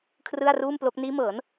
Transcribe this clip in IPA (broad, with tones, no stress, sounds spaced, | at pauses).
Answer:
kʰ r ɯ˥˩ a̯ r uː˥˩ m p l o˦˥ k̚ n iː˦˥ m ɤː˩˦ n